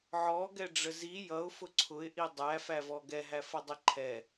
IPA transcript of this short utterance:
ʕ ɔ ɡ ɛ ɖ͡ʐ ə z i j ʌ ʊ̯ f ʊ ǀʰ ʊ ɪ̯ ʔ i dˤ æ f æ v ɔ ɡ ɛ ɦ æ f ʌ dˤ i ǃʰ ɛ

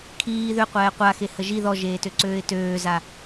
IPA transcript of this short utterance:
kʰ iː ð ø qʷ ɛː qʷ a x e h ə ʒ i ð ɔ ʒ eː t ø ǀ øː ɪ̯ t øː z a

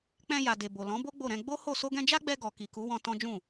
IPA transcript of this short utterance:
k͡p ɛ̃˧ j a˨ d e˨ b o˨ l ɔ̃˨˦ b o˦ ɡ͡b o˦˨ ɾ ɛ̃˧ ɡ͡b o˦ h o˦˨ s o˧ ɡ ɛ̃˧ d͡ʒ a˦ ɡ͡b ɛ˧ ɡ ɔ˨ k i˨ k u˨˦ w ɔ̃˧ t ɔ̃˦ d͡ʒ ũ˦˨

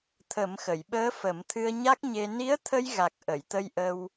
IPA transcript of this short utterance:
t̪ʰ ə˨˩˦ m x ə˨˩˨ j ɓ əː˧˥ f ə˨˩˦ m t̪ʰ ɨ˧ ə̯ ɲ a˦˥ k̚ ɲ e˧ n i˧˥ ə̯ t̪ʰ ə˧ j ɣ a˨˩ k̚ ʔ ə˨˩˨ j t̪ ə˧ j ʔ ə˧ w

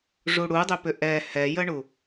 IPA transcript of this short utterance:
ʐ u ɽ u dˤ ʏ p ʏ ʔ ɛ h ɛ j ə ɳ u

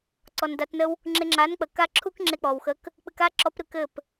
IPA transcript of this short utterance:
ǀ ɔ˨ n d a˧ t n ə˦ w | ŋ͡ǁ e˧ ŋ͡ǁ a˨˦ n k͡p ə˨ k a˦ ǁʰ u˦ k ŋ͡ǁ e˧ k͡p ɔ˨ w x ə˧ k | k͡p ɨ˨ k a˦ ǁ ɔ˨˦ p ɾ ɨ˨ k ɘ˦˨ p

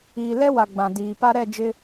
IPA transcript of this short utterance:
iː˨ l ɛ˦ w a˨ ɡ͡b ã˨ d iː˨ p a˦ ɾ ɛ˦˨ d͡ʒ ɪ˦

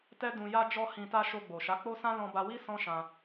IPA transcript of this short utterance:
t ɛ˦ d ũ˧ j a˦ d͡ʒ ɔ˦ h ĩ˧ t a˦ ʃ o˧ ɡ͡b o˨ ʃ a˨˦ k͡p o˦ s ã˦ l ɔ̃˧ b a˧ w i˦ s ɔ̃˦ ʃ ã˧

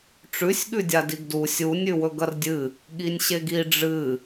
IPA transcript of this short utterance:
ʈ͡ʂ ʉ sʲ ɠ ʉ dʲ a d i ɡ d u sʲ u nʲ ʉ w ɵ ɡ ɐ r dʲ ɨ | ɠ i nʲ ɕ e ɡ i ɖ͡ʐ ɨ

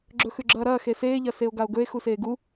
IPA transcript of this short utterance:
ɡ͡ǁ ɵ x ʉ ɡ͡ǁ ɐː ɾ ɐː x e s eː ʎ ɐ s e o̯ ɡ a o̯ ɡ ɵ e̯ x u s eː ɡ u

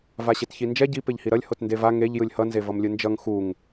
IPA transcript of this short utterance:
v a ɕ e t ç i n d͡ʒ ɛ ɟ i p e ʎ h i ɾ ʌ lʲ h o t n d e v a ŋ e ʎ j ɯ lʲ h ʌ n z e v ʌ m lʲ ɯ n d͡ʒ ʌ ŋ x u ŋ

